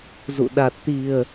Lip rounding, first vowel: rounded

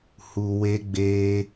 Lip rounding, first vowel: rounded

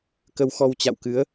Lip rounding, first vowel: unrounded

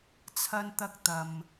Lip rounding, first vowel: unrounded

